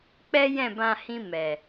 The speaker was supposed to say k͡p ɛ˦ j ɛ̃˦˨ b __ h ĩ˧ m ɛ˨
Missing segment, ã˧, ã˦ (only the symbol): ã˧